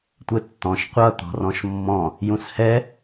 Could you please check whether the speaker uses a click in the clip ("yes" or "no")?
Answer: no